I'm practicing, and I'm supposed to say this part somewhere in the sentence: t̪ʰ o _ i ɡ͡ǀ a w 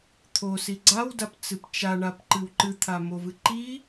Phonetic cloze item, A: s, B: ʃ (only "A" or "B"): A